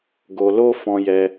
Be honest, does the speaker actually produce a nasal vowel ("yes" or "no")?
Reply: yes